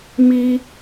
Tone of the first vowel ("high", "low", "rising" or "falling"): high